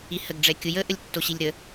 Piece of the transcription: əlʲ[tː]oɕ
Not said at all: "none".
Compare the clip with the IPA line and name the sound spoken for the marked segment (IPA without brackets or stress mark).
tː